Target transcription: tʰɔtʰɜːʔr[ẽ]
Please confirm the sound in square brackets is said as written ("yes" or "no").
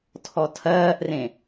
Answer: yes